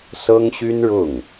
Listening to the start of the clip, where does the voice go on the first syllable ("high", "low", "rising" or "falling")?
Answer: high